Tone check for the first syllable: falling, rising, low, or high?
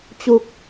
falling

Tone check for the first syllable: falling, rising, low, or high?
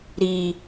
low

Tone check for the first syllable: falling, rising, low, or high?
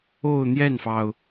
falling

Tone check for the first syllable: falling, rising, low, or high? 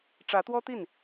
rising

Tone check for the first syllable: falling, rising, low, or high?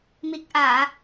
low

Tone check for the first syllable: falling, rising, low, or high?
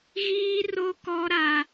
high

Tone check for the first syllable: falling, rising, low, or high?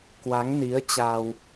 rising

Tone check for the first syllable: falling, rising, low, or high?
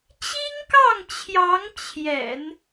high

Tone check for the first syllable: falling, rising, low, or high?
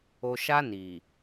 low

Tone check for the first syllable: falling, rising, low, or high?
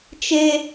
high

